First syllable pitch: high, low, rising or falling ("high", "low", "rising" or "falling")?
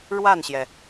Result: falling